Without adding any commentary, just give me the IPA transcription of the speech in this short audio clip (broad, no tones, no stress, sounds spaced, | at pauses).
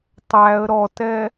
tˤ æ ə̯ ɾ ɔ t ɛ